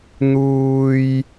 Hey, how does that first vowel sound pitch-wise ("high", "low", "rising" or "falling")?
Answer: high